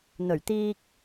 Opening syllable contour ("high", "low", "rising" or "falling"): low